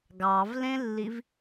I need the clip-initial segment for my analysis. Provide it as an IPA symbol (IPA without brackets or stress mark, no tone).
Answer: ɡ